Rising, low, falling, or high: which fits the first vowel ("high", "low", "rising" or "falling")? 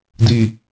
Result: low